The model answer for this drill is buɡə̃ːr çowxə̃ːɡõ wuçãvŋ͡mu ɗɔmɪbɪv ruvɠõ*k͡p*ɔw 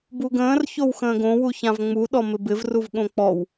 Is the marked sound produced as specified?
yes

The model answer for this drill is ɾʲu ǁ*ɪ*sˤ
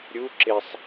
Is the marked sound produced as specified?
yes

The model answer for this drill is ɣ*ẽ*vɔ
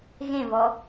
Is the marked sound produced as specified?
yes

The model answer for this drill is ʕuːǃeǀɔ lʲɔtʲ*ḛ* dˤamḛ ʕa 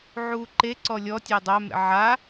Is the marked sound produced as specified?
no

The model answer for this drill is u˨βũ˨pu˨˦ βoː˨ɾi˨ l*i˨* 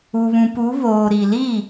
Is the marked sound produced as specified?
no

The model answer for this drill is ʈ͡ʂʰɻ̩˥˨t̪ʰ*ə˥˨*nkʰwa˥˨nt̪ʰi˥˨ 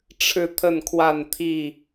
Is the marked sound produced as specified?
yes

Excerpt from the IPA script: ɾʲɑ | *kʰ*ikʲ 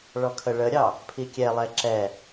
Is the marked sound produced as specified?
no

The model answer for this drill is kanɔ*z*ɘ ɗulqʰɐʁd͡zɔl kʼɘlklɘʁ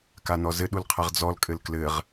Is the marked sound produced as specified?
yes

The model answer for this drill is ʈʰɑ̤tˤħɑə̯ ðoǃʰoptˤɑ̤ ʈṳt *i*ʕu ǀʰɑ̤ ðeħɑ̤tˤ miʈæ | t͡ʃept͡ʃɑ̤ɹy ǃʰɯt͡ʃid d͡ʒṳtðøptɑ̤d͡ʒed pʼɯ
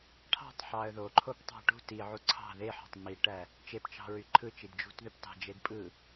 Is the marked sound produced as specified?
yes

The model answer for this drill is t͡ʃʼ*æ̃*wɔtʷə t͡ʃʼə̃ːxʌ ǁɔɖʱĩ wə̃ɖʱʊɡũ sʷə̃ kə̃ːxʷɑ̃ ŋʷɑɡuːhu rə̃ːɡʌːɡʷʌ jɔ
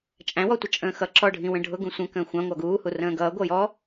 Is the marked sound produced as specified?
yes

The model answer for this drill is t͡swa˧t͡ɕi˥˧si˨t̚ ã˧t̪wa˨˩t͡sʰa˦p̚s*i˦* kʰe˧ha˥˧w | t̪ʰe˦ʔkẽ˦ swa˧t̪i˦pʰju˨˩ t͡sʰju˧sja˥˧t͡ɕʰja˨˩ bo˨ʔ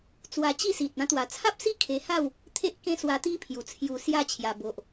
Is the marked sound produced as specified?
yes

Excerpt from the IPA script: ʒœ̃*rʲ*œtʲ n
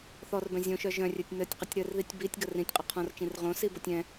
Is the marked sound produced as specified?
yes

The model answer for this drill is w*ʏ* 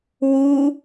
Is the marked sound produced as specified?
no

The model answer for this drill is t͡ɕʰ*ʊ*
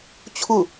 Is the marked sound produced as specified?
yes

